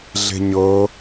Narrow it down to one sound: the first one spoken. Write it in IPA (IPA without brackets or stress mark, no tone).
ɮ